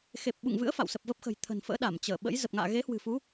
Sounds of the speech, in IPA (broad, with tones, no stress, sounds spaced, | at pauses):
x e˨˩ p̚ ɓ ṵ˧˨ ŋ v ɨ̰˧˥ ə̯ f a̰˧˨ w s ə˨˩ p̚ v ə˦˥ p̚ x ə̤˨˩ j t̪ʰ ə̤˨˩ n f ə̰ː˧˥ ɗ a˧˩ m t͡ɕ əː˧˩ ɓ ə̰˧˥ j z ə˨˩ p̚ ŋ a̰ː˧˨ ɣ e˨˦ h w ɨ̤˨˩ f u˨˦